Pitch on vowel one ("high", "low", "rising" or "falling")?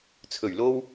low